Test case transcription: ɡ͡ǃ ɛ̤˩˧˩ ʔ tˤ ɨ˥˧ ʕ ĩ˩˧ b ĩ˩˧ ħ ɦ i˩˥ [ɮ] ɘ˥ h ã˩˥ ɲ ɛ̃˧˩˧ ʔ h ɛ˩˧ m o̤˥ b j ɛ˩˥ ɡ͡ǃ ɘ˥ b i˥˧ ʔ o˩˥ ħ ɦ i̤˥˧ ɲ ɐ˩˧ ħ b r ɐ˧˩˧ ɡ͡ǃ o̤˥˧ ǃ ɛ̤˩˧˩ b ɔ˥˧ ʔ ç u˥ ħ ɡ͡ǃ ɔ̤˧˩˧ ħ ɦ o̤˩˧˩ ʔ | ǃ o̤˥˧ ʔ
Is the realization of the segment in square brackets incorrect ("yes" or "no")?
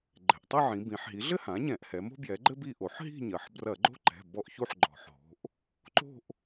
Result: no